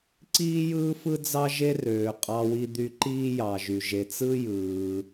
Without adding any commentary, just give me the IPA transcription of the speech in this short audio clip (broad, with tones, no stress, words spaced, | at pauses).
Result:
ǀiː˥jɯː˥fɯ˥d͡zɑ˥ ʒe˥røː˧ qʼɑ˧wi˧d̪y˧ ǃiː˥jɑ˧ʒy˧ ʒe˧t͡sɯ˥jɯː˧